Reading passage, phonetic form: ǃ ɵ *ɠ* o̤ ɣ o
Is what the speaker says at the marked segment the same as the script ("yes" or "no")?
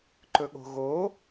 yes